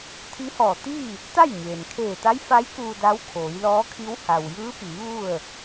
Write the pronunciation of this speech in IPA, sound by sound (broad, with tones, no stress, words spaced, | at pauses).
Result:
t̪ʰi˧˥hɔː˧˩t̪iː˥˨ | t̪a˥˨jɲeː˩n kʰeː˧˩t̪a˧˥jfa˧˥j kuː˧da˧˥w kʰoː˩˧jlɔː˧˥kʰi˧˥w ha˩wjɯː˧˥ piː˩˧ ʋu˥˨ə̯